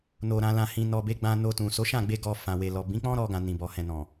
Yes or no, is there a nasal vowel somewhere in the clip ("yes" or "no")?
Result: yes